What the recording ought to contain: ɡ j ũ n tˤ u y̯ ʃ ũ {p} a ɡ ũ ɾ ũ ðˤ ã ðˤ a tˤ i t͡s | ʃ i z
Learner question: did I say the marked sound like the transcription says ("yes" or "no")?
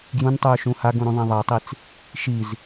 no